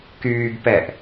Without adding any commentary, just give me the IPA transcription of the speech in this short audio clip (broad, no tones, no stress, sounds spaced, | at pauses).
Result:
k yː ɡ p ɛ ʔ